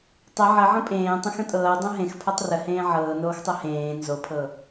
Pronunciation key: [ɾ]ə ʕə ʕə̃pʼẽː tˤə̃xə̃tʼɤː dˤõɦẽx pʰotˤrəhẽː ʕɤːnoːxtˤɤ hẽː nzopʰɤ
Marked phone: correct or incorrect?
incorrect